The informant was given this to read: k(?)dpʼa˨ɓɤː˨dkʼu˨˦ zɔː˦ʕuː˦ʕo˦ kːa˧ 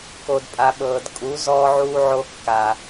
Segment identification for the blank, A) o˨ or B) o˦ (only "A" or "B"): A